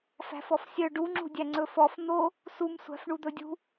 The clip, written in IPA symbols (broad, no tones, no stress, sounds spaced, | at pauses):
f æ̤ f ɔ f sʲ œ ɖ u ŋ͡ǁ ṳ dʲ æ ŋ͡ǀ ɵ f ɔ f n̪ o | s u m sʷ æ̤ f ɳ u d̪ ɵ dʲ ṳ